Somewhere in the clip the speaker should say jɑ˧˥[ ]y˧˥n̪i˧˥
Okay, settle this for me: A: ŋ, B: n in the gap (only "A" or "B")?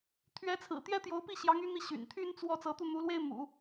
A